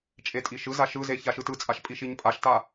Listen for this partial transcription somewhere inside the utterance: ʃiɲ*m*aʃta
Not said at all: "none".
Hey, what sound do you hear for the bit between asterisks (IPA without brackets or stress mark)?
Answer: pʼ